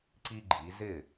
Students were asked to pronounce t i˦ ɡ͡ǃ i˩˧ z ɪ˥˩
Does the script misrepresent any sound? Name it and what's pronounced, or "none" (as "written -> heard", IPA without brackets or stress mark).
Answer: t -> ǀ